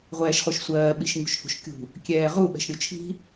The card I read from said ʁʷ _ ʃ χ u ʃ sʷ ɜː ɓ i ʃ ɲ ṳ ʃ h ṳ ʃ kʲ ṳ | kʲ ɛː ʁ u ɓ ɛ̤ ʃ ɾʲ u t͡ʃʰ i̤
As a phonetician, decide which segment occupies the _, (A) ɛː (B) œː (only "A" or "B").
A